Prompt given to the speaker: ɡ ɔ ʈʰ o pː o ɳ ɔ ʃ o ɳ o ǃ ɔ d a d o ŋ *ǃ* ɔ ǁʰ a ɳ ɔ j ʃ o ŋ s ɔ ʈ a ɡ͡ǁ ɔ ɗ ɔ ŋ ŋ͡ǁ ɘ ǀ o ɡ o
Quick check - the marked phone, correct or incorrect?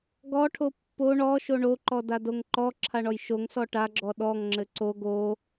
correct